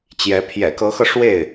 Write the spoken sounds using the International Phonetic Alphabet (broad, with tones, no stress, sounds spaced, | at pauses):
t͡ɕ j ɛ˧˥ pʰ j ɛ̰˨˩ k ɤ˧˥ x ɤ˧ ʂ w e˥˩ ɪ̯